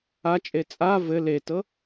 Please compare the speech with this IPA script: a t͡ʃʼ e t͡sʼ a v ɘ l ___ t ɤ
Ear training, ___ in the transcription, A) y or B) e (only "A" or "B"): B